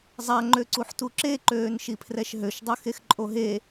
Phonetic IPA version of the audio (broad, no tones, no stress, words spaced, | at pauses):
zˤa ŋ͡ǃøǀuħtuǁe ǃøːnʃipʰrɛʃɦøʃ dˤøxexǃʼoɦe